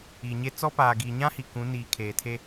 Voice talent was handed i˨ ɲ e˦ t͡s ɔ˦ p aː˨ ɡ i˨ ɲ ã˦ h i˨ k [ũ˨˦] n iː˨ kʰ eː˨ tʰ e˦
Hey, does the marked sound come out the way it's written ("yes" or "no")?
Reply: yes